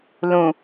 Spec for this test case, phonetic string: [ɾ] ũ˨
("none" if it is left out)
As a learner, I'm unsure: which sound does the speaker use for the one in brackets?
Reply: l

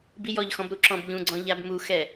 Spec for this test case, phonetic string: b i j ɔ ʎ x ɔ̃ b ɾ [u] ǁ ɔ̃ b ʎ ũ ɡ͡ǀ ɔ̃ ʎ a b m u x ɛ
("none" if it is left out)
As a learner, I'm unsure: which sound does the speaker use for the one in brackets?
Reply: u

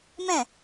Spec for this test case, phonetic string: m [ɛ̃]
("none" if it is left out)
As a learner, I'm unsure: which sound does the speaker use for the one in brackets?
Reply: ɛ̃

